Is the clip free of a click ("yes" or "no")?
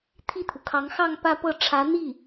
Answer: yes